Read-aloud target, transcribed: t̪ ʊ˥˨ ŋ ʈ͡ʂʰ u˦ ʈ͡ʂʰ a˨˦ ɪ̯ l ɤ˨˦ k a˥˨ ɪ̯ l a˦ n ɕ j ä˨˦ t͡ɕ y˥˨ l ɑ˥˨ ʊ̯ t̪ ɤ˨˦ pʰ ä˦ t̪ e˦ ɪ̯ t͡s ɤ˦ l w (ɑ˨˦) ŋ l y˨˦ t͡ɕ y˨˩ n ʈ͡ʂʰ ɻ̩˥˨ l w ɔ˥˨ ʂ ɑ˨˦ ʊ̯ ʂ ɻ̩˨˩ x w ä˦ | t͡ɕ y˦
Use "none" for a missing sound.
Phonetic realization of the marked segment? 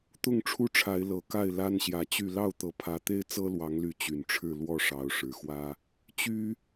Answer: ɑ˨˦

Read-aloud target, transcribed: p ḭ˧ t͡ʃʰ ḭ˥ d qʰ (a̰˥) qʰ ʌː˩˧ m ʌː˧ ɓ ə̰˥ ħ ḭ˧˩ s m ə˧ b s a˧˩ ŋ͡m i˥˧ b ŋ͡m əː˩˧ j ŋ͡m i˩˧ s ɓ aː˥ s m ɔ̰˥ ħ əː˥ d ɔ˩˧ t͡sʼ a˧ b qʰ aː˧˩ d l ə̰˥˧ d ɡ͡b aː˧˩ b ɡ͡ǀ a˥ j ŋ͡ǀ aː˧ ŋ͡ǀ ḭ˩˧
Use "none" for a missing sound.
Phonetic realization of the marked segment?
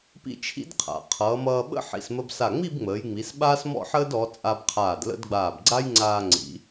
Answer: a̰˩˧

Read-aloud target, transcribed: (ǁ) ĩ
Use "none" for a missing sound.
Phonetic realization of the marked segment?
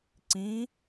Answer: ǀ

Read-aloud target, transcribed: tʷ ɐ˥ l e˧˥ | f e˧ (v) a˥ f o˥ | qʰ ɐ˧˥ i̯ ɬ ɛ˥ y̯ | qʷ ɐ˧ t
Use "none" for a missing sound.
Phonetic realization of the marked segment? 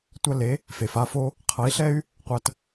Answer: f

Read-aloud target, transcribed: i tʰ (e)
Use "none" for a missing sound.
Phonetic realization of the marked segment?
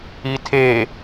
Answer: e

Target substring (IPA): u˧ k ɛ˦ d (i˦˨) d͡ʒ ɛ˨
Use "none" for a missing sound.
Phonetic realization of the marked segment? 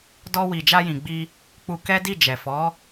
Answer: i˦˨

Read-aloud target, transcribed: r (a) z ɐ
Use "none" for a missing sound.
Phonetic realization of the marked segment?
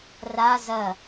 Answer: a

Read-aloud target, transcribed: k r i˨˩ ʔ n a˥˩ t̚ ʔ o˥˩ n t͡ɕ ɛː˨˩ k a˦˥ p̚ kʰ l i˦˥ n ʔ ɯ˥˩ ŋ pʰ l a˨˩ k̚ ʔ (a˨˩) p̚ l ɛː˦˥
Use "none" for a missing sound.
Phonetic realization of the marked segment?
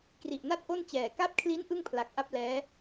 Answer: a˥˩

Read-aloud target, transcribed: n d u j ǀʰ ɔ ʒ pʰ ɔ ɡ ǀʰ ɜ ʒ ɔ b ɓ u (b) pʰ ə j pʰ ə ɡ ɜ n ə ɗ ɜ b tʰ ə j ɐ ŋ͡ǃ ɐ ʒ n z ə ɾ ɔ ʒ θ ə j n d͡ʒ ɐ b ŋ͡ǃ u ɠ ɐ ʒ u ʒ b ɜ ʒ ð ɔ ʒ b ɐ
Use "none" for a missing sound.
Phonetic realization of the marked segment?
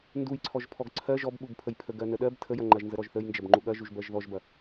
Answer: b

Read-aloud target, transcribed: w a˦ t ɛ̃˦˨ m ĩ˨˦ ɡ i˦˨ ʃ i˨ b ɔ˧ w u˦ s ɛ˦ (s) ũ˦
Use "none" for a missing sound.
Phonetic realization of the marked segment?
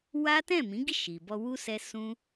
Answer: s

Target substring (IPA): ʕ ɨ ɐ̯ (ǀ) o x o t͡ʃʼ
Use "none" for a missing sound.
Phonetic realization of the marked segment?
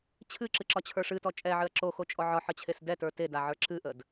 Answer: ǁ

